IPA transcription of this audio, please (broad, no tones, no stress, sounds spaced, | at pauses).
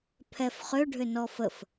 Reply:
pʰ ɛ f χ ʏ ɖʱ ʏ n ɔ f ə f